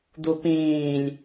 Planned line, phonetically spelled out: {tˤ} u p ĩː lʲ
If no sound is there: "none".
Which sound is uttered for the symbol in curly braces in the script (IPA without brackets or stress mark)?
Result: d̪